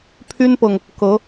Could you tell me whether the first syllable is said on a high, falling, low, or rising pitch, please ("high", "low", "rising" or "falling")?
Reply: high